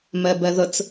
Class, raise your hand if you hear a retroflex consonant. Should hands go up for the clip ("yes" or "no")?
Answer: no